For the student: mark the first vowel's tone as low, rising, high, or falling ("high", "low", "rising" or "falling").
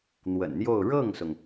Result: low